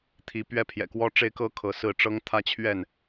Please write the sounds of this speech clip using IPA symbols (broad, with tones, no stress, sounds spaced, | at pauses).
t̪ʰ i˨˦ p ɥ ɛ˦ pʰ j ɛ̰˨˩ k w ɔ˦ ʈ͡ʂ e˦ ɪ̯ k ɤ˦ kʰ ɤ˨˦ s ɹ̩˥˨ ʈ͡ʂ ɤ˦ ŋ t̪ʰ ä˦ t͡ɕʰ ɥ ɛ˥˨ n